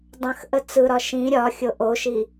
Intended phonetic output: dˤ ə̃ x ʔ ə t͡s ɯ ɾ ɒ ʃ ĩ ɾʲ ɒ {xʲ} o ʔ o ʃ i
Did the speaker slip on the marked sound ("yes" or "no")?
no